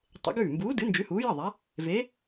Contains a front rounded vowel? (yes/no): no